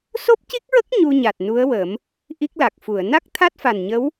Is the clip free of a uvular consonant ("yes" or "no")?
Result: yes